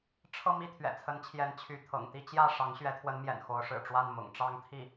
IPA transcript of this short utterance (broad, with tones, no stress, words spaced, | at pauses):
ʈ͡ʂʰɤ˥˧mi˥˩ t̪ʰɥɛ̰˨˩t͡sʰə˧˥nt͡ɕʰjɛ˧˥n t͡ɕʰy˧˥t̪ʰɤ̰˨˩ŋ t̪i˥˧t͡ɕjä˥˩ ʂɑ˧˥ŋɕɥɛ˧˥t̪ʰwə˧˥nmjɛ̰˨˩n xo˧˥ʊ̯ʂɻ̩˨˩ʈ͡ʂwa˥˩nmʊ̰˨˩ŋ ʈ͡ʂɑ˥˧ŋt̪ʰi˥˩